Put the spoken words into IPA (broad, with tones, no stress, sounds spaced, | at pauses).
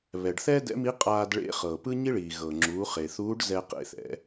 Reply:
β ɛ˩ ɖ θ ɛː˥ d ɛ̰˧˥ m i˧˥ qʼ aː˧ d ɭ ḛ˧˥ χ ɤ˩ p ɯ˥ ɲ i˥ ɭ iː˩ ɣ ɤ˩ ŋ͡ǁ uː˩˧ χ e˩ θ uː˧˥ ɖ z ɛː˧ q ḛ˧ θ ɛ̰˩˧